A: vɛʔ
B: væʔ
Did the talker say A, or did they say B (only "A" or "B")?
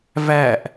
B